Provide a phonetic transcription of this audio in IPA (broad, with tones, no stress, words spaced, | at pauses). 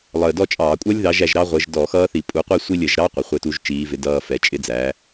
lˠəː˨˩ dɔ˥˧t͡ʃʼɑː˧˩˧ kʷʼʌ˦˥lʲðɑ˨˦ʒ æ˨˦ʒɾɑ˦˥ ʁʷəː˨˦ʒ dɔ˧˩˧xʌː˦˥θi˧˩˧ pʼu˨˦qʷi˥˧sʷi˥˧lʲ ə˧˩˧ʒɾɑ˦˥ qʷɪ˨˦χʷɪ˥˧tu˦˥ʒ t͡ʃiː˨˦vɪ˨˦ dʌː˥˧ fɛ˨˦t͡ʃʼɪ˦˥ d͡zæ˨˦